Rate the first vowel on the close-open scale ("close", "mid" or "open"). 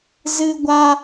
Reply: close